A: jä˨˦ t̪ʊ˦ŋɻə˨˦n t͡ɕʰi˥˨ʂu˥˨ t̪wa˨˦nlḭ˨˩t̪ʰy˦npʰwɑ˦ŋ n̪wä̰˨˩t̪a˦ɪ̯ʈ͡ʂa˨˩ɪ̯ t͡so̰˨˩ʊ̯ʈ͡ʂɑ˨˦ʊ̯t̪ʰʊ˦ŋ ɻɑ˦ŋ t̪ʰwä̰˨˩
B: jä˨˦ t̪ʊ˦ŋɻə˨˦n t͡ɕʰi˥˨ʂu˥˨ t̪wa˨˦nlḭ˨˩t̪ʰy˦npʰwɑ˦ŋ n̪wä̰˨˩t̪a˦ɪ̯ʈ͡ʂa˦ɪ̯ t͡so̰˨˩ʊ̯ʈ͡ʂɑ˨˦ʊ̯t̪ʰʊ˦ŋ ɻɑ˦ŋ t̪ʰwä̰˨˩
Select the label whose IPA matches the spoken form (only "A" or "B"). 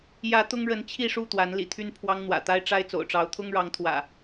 B